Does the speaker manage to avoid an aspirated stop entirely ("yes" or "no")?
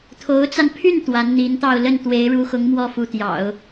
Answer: no